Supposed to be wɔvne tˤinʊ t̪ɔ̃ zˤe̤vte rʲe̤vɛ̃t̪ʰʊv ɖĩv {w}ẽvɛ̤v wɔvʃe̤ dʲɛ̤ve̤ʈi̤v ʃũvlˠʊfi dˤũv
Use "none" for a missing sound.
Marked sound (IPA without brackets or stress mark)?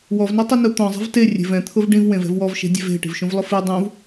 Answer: w